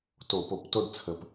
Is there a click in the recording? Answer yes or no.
no